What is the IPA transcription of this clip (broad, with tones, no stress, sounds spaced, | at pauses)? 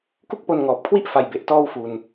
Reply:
k u˥˩ k̚ p o˧ n ŋ ɔː˨˩ p̚ kʰ w i˥˩ ʔ f a˧ j b e˨˩ ʔ t ɔː˥˩ w f u˧ n